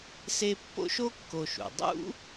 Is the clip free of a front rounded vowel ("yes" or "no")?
yes